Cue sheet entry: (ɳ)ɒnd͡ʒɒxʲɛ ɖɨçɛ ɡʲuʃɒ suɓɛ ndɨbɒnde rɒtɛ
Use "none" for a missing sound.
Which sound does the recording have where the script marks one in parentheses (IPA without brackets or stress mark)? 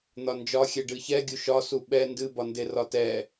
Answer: n̪